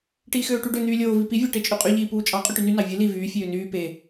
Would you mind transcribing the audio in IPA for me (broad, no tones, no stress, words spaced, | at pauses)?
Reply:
ʈiːxøːʈyɖø n̪yːlʲoː vipi vʲɑʈet͡ʃʼyqʼy ʎiːpuːt͡ʃʼɑ qʼyʈyny nɑvʲɯ li vyː fʲøːnyː pe